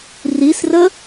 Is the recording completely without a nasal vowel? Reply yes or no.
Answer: yes